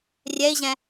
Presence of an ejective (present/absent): absent